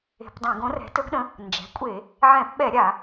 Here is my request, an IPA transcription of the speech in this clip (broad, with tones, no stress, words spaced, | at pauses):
e̤˧˩˧pdˤɛ̃˧˩˧ ɡõ˩˥rɛ̤˩˥tɵ˩˥ɡɗə̃˩˥ | nd͡ʒɛ̤˩˥kʷʼe˧˩˧ | ʕɛ̃˧˩˧pɓɛ˧˩˧ ɾʲa˧˩˧